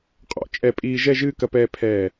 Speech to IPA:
qʼ ɔ̰˧˩ t͡ʃʼ ɛ˧˩ pʼ iː˧ ʒ ɛ˥˧ ʒ ɨː˥˧ k ɐ˧ p ɛː˧ pʰ ɛː˧˩

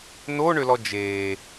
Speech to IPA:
n o ɳ ø l ɔ d͡ʒ eː

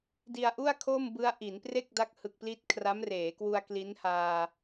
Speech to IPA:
d i˧ a̯ ʔ u˥˩ a̯ kʰ o˥˩ m b ɯ˦˥ a̯ ʔ i˩˦ n p r e˥˩ k̚ d a˦˥ k̚ h ɯ˨˩ k̚ p l i˦˥ t̚ kʰ r a˦˥ m r eː˩˦ k w u˧ a̯ k l i˦˥ n h aː˧

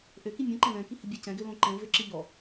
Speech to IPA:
ʔ ø k i mʲ õ ǃ ɛ̃ l ɛ̃ k i h ɪ bʲ ɛ c ɛ̃ ɡ ø l õ ǃ ɛ̃ v ø ǁ ɪ ʎ ɔ

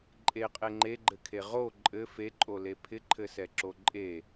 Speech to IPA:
ǃʼ e qʼ e ŋ͡ǃ e ɡ͡ǃ ɘ kʰ e ʁ o ǃʼ ɘ f e ǃʼ o l e pʰ ɪ ǃʰ ɘ s ɛ ǁ o ǃʼ e

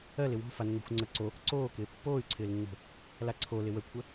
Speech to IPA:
ɜ l ɪ w o̤ f a nː o̤ xʷ ŋ͡ǀ əː ǀ o | ǀ oː k ɪː pː oː y̯ ǀʰ ɪː l nː o̤ | l a ǀʰ o l ɪ w ə kʷʰ ə

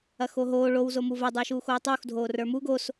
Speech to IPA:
ɐ x o ɦ oː ɭ o w z o m u v ɐ dˤ ə˞ ʃ uː x oː tˤ uː x dʱ oː r ə˞ m u ɡ o s

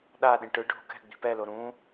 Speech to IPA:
ɗ a ɗ ĩ ʈ ɯ ɖʱ o̤ k ɛ̤ ɡ͡b i̤ p ɛ l o ɾ ũ

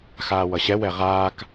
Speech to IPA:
x aː w ʌ ɕ ɛ w ɛ ʁ aː k

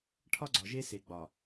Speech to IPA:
ʈʰ ɒ˦ ɡ͡ǀ ɒ˨ ʒ e˦ s e˨ ɡ͡b ɒ˨

